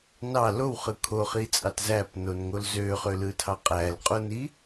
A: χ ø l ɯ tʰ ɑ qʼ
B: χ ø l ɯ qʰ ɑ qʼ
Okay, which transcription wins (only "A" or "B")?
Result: A